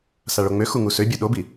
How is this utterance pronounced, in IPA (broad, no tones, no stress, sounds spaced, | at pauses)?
s a ɭ o ŋ͡m ø x u ŋ u s ø bʲ o ɗ o b i